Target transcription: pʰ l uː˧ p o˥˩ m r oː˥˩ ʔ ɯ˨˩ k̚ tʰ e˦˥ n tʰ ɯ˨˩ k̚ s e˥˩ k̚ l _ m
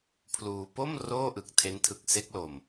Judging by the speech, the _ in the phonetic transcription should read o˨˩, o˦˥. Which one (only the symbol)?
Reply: o˨˩